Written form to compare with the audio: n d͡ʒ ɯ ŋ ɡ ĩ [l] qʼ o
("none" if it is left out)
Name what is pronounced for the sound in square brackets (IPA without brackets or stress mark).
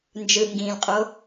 l